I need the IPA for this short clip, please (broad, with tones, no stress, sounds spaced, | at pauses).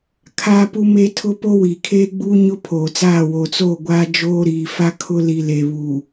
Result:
kʰ aː˦ p u˦ m e˦ tʰ ʊ˦ p o˦ w iː˨ kʰ eː˦ ɡ͡b uː˦ ɲ ʊ˦ pʰ oː˨ t͡s aː˦˨ w o˨ t͡s oː˦˨ ɡʷ aː˦ d͡ʒ oː˦ ɾ iː˨ f a˦ kʰ ʊ˦ l i˨ l e˨ β u˨